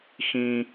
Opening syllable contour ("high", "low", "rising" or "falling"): low